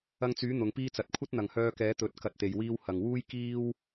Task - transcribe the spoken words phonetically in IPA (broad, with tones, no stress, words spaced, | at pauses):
ɐ˧ŋt͡syː˨˥ n̪ʊ˨ŋpiː˥t͡sɐ˨˥t̚ kʷʰɐ˥t̚n̪ɐ˨˩ŋhœː˧kɛː˨˥ t̪ɵ˨t̚ kɐ˨t̚t̪e˨˩jwiː˧w hɐ˨˩ŋwuː˥j kiː˥w